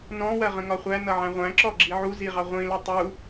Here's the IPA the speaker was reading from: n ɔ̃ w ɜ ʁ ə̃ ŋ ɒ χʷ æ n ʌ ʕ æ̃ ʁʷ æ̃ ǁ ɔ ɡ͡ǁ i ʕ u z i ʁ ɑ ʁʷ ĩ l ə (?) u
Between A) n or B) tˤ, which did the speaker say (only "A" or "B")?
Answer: B